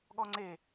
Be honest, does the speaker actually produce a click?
yes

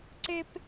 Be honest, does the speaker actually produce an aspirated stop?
no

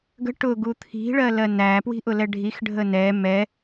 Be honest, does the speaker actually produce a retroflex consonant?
yes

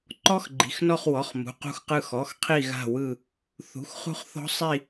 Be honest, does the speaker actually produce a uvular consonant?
yes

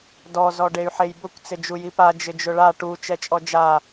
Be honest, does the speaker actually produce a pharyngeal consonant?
yes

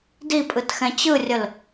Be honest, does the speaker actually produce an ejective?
yes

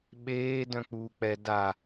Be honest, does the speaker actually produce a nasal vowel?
yes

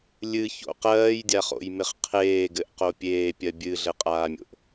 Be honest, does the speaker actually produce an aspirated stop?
yes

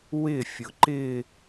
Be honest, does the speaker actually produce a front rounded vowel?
no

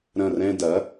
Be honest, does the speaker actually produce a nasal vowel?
yes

